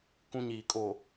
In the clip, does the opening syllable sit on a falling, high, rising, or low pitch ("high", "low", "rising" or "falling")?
high